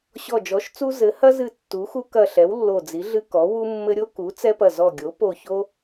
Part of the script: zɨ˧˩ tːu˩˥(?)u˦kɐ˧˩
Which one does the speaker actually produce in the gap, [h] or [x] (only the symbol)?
x